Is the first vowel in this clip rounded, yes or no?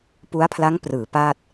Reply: yes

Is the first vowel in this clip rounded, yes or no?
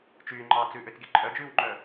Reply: yes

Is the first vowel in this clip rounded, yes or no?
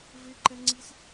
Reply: no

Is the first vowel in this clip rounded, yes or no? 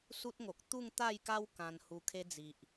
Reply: yes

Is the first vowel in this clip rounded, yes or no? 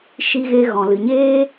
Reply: no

